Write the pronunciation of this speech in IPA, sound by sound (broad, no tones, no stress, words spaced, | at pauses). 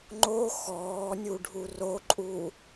ŋ͡ǃo xɔːnʲuɖʱu roǃʼu